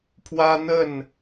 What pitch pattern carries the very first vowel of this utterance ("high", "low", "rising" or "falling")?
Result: high